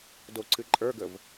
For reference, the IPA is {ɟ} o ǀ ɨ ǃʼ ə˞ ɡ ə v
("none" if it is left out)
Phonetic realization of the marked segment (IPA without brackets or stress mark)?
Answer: d